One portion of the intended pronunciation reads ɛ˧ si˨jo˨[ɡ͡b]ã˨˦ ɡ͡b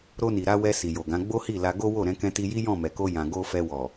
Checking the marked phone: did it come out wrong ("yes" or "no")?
yes